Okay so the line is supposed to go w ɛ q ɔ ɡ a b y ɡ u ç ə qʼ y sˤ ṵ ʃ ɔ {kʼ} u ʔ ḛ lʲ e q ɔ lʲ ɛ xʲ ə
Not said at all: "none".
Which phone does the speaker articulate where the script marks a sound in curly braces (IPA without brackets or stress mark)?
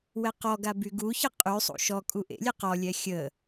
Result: kʼ